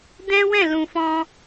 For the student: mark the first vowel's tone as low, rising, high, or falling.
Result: high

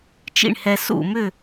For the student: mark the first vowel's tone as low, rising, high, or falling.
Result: falling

